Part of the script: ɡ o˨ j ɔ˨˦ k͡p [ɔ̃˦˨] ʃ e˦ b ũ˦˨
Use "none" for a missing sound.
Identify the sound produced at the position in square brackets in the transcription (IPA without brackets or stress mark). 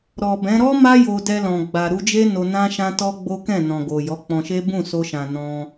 ɔ̃˧